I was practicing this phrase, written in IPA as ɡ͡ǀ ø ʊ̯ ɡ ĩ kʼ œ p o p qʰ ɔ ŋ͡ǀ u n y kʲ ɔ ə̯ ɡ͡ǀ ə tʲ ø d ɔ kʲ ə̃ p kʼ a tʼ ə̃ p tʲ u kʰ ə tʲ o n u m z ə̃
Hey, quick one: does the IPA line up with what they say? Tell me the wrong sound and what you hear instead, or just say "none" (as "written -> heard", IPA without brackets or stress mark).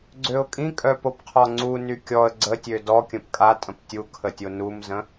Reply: ɡ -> kʼ